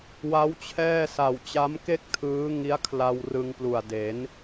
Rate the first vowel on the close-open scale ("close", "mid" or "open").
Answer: open